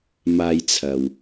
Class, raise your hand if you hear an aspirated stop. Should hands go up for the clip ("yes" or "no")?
yes